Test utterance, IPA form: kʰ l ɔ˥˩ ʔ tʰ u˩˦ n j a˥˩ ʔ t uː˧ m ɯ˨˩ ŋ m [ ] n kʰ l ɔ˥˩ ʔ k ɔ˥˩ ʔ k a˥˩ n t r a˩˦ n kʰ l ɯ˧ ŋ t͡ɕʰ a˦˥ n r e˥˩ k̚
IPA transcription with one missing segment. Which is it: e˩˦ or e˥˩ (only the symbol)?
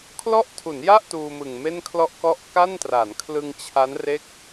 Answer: e˥˩